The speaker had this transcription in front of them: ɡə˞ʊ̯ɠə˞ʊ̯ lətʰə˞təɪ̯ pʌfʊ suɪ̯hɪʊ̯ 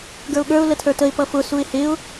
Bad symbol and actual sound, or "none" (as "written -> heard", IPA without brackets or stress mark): none